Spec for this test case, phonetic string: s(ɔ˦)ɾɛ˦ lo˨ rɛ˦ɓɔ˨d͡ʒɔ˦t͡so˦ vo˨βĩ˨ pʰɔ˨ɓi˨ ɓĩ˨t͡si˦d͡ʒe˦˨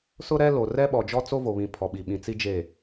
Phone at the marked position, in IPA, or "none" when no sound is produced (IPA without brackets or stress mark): ʊ˦